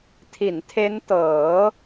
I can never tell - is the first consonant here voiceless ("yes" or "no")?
yes